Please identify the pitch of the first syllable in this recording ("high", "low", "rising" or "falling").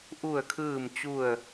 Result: falling